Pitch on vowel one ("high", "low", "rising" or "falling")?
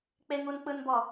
low